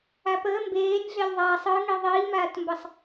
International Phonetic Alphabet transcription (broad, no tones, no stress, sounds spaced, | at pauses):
a p əː m b eː nʲ ɮ e lʲ ðˤ aː sˤ ɯ ŋ i ðˤ iː m aː t m b ə sˤ